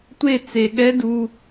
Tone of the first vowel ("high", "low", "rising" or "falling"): falling